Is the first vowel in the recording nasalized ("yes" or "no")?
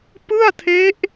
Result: no